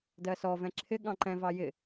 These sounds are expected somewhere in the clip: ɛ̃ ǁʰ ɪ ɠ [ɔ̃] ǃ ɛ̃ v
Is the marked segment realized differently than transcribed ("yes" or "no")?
yes